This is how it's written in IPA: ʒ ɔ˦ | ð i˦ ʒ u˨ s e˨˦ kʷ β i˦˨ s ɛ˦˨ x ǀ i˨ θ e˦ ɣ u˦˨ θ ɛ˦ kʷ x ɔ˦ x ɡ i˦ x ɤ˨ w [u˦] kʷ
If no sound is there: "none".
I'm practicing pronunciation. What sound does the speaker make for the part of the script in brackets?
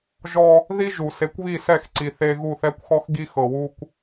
u˦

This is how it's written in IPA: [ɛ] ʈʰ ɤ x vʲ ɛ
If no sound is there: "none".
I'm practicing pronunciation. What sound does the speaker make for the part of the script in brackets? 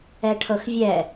ɛ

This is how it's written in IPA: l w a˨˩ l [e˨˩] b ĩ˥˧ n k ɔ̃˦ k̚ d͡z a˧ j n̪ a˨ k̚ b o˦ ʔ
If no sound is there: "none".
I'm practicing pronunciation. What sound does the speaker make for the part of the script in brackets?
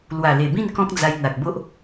e˨˩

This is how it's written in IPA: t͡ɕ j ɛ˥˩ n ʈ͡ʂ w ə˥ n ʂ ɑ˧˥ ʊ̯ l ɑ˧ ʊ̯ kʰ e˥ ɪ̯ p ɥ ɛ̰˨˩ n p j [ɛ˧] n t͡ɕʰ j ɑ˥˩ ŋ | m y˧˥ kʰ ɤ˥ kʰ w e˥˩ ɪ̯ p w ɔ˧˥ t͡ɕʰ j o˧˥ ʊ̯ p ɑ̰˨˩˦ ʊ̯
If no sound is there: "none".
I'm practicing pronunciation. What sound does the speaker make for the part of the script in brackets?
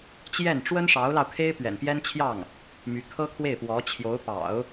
ɛ˥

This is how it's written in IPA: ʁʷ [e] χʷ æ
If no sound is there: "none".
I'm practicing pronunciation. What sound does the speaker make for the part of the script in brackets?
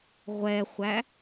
ɛ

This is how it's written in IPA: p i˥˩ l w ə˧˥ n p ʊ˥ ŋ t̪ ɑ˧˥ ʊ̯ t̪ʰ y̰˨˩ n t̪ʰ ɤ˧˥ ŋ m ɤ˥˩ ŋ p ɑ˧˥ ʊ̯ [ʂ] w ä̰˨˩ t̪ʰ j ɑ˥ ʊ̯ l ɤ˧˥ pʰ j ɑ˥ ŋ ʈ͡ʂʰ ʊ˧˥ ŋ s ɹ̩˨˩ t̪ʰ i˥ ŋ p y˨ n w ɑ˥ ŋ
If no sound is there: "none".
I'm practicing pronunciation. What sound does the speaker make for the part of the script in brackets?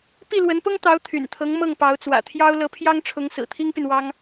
t͡s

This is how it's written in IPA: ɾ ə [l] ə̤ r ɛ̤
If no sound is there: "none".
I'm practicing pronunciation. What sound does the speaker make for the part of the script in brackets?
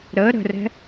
ɾ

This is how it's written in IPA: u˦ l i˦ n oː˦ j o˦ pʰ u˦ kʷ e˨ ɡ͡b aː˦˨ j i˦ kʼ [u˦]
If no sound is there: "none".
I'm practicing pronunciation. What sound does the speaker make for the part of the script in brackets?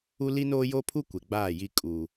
u˦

